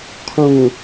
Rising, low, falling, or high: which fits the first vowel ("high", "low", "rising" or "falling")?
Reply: low